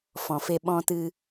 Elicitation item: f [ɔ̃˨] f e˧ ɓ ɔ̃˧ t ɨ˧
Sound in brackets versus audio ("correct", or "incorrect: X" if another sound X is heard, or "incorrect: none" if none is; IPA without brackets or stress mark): correct